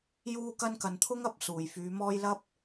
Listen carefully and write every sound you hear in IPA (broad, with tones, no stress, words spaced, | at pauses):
juː˧kɐ˧n kɐ˨nt̪ʰʊ˥ŋɐ˧p̚ suː˨jfyː˨˧mɔː˥j lɐ˥p̚